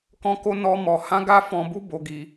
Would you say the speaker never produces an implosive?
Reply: yes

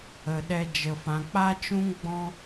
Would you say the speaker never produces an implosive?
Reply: no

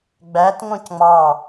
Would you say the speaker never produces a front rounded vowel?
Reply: no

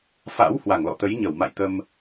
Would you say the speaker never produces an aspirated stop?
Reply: yes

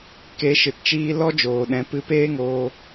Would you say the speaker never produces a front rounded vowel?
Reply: yes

